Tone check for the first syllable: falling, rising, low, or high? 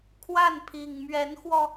falling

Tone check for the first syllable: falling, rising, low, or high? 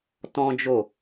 high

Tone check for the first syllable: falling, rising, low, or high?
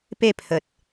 falling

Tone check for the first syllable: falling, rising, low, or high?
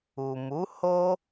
low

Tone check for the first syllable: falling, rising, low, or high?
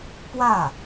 falling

